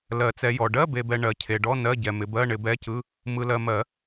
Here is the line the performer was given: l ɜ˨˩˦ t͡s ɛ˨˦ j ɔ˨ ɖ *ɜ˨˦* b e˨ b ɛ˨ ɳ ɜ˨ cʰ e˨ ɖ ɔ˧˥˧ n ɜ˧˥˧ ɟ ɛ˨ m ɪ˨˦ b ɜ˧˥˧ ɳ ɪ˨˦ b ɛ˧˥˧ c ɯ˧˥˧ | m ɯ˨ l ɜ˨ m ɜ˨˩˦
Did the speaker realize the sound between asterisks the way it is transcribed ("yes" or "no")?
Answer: no